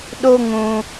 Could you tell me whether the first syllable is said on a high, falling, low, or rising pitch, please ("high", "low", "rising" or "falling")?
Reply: high